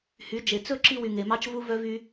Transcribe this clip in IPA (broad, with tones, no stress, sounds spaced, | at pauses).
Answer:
h y˨˦ d͡ʒ e˨ t͡s ɵ˦ ǁ i˧ w y˨ ŋ e˨ m ɑ˧ t͡ʃ v u˧ v œ˧ v y˧